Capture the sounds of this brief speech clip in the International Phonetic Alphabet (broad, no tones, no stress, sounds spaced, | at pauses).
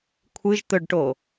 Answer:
kʷʰ ɨ ʒ t̪ ɵ ɖ ʈ o